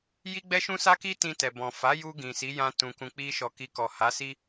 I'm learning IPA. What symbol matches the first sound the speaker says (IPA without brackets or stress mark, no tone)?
j